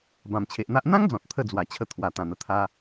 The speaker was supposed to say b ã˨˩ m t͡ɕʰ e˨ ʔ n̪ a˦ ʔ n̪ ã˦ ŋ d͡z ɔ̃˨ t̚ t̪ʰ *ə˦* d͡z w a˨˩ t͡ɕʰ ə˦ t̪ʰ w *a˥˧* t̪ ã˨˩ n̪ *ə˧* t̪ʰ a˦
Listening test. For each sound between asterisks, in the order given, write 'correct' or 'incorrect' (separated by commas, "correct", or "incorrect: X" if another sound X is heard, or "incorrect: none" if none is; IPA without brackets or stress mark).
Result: correct, incorrect: a˨˩, correct